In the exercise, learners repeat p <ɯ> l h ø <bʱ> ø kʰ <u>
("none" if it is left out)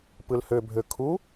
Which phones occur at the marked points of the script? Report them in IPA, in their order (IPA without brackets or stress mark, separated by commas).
ɯ, bʱ, u